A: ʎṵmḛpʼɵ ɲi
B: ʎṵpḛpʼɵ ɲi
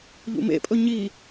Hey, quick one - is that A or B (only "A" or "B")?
A